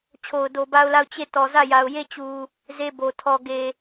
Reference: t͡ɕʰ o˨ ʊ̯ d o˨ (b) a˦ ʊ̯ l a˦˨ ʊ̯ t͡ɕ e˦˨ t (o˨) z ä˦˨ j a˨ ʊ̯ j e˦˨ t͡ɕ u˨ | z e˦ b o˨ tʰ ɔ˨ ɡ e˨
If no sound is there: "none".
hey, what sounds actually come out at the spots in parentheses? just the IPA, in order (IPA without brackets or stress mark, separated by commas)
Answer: b, ɔ˨